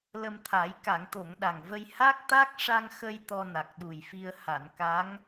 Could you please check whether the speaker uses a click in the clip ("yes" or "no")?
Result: no